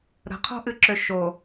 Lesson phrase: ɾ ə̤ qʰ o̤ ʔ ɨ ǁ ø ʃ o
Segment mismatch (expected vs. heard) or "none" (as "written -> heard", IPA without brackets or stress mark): none